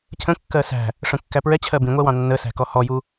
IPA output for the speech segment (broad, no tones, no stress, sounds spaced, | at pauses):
cʰ ə̃ kː ɜ s æ̤ | ʂ ə̃ kː æ p ɹ ɛ t͡ɕʰ ɜ b ĩ ŋʷ ɛ w ɑ̃ nː ə s æ̤ k ɔ h ɔ j u